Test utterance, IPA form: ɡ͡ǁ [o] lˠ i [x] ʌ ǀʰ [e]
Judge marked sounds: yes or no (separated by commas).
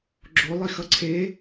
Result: yes, yes, yes